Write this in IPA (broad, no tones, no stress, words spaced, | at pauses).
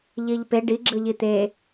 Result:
ʎiʎpe ɖiɡ͡ǁɯʎi t̪e